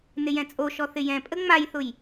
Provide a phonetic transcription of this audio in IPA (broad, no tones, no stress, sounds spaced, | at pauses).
n ɪ j ɛ̃ t͡sʼ o ʃ ɔ θ ɪ j ɛ̃ pʼ ə ŋ͡m a j θ ʊ j